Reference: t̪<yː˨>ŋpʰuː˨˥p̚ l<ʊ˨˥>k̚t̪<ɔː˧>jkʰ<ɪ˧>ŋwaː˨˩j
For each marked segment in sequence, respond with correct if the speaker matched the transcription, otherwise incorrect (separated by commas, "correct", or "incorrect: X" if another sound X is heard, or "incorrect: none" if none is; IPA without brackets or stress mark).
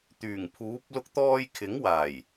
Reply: incorrect: yː˨˩, incorrect: ʊ˧, correct, incorrect: ɪ˨˥